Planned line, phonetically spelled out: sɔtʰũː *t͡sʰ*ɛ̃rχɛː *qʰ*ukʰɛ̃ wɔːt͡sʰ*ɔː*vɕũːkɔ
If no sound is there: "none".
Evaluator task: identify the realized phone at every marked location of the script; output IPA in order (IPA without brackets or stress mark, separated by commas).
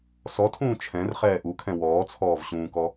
t͡ʃʰ, ʔ, ɔː